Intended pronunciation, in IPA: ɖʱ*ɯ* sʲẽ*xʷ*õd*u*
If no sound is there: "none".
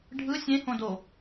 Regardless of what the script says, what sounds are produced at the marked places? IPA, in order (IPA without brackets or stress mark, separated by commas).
ɯ, h, o